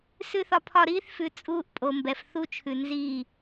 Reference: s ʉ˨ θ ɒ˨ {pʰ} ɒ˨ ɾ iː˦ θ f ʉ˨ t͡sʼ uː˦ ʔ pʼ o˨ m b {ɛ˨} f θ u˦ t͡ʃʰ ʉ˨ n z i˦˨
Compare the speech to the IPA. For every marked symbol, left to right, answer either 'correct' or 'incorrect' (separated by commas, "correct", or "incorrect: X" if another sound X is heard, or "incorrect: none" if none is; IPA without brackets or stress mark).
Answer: correct, correct